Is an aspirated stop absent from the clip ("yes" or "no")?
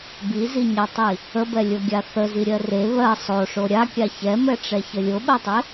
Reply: yes